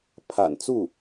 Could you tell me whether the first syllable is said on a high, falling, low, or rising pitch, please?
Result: low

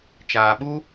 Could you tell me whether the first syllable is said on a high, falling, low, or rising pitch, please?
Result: low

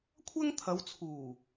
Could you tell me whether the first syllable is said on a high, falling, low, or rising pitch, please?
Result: high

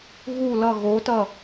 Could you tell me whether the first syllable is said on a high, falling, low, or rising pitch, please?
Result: falling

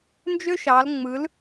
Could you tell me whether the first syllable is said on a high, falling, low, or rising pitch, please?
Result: high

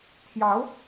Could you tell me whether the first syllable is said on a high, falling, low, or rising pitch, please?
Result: rising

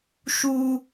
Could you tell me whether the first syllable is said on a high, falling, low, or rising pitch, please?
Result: high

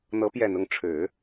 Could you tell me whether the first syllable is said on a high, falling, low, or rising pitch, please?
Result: rising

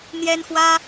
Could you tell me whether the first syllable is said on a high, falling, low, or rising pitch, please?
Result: high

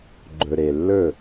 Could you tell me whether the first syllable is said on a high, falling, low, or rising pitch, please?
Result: low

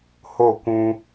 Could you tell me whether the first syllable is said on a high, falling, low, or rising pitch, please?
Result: falling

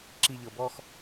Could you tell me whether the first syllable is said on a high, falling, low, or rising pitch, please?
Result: low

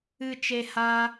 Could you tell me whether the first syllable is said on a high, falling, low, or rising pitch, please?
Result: low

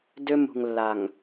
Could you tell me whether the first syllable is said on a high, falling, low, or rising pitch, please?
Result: high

